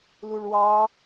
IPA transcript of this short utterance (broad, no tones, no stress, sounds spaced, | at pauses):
l u ɭ w ɑ